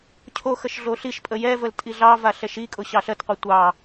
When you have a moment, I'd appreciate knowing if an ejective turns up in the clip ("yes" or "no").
yes